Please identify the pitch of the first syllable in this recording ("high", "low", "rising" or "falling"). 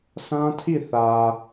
high